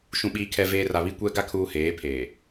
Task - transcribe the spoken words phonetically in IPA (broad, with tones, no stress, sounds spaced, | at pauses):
ʃ ũ˨ ɓ iː˨ kʰ ɛ˨ v eː˨ r a˨ β i˦ kʷ ɛ˦ ɡ a˦ kʰ uː˨ h eː˨˦ pʰ eː˨